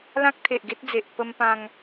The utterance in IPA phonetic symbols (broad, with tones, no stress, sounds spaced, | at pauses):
l ã˦ k̚ t̪ʰ e˨ ʔ ɡ e˦ t̚ d͡z e˨ ʔ p ə˧ m p ã˧ ŋ